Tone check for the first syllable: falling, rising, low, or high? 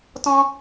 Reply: high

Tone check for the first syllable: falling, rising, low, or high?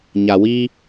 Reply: low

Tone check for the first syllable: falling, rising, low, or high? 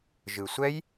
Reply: low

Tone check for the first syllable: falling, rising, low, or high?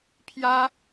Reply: high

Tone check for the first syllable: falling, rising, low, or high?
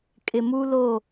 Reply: low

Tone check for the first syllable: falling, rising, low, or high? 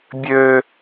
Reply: high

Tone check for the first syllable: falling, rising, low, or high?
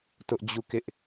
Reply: high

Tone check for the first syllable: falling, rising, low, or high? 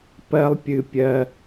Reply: high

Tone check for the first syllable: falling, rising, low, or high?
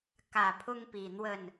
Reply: low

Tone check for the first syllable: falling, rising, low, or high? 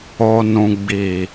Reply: low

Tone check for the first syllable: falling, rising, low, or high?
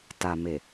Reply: low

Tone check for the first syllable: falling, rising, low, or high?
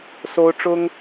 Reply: high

